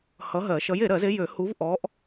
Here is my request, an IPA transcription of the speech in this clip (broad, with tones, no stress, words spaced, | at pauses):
hʌ˨˥ ɦɜ˨˩˦ʃʌ˨˥j e˨˩˦ɾɜ˨˩˦ze˨˥ jø˨˩˦ hu˨˥vʔɔ˨˥ʔ